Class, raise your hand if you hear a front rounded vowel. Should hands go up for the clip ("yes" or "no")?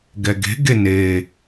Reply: no